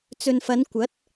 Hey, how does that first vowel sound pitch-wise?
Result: low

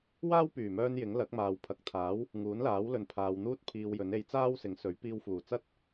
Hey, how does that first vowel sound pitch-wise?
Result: high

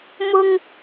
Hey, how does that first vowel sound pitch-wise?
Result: high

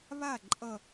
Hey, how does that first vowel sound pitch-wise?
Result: falling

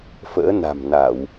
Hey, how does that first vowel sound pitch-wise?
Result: rising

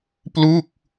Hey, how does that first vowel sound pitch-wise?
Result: falling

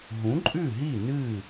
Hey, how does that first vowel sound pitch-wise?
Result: rising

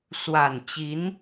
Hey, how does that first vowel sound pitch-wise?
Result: low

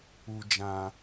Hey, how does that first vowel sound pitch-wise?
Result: low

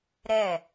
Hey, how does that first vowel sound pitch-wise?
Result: falling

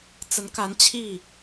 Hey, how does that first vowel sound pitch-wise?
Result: rising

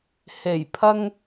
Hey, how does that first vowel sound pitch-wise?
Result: low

